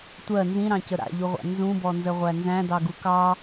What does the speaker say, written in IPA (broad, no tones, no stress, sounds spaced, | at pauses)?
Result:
tʷ ɜ n z ĩ ɾ ɑ̃ c ə ɾ a̰ ʎ u ʁʷ a̰ n z ũ b ɔ n z ə ʁʷ æ n z æ̃ d ɑ ɡ u k ɑ